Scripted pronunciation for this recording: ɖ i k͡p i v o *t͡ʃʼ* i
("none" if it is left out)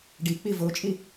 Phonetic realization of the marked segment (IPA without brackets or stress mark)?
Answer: t͡ʃʼ